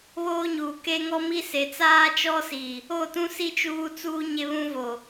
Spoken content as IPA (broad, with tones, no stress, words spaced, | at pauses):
βoː˦ɲuː˨ ke˦ŋɔ˦mi˦se˨ t͡saː˦t͡ʃɔ˦si˨ | o˦˨tũ˦si˦ t͡ʃuː˦t͡suː˦ ɲe˦βũ˦vo˨